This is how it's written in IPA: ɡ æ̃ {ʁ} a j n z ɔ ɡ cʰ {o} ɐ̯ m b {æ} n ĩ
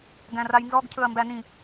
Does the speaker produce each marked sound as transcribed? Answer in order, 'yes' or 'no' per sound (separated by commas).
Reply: no, no, yes